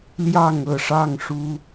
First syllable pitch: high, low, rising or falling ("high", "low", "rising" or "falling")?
falling